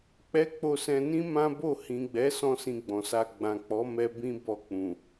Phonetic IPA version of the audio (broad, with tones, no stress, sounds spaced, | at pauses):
k͡p ɛ˦ k͡p o˧ s ɛ̃˧ n ĩ˦ m ã˦ b o˦˨ h ĩ˨ ɡ͡b ɛ˨˦ s ɔ̃˦ s ĩ˧ ɡ͡b ɔ̃˨ s a˧ ɡ͡b ã˨ k͡p ɔ˨˦ m ɛ˧ b ĩ˦ b ɔ˧ k͡p ũ˨